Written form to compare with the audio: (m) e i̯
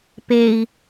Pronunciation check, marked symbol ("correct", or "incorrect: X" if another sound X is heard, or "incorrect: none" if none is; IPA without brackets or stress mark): incorrect: p